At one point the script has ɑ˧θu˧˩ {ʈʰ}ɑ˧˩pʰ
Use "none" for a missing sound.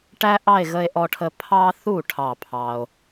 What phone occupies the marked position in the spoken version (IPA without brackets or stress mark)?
ʈʰ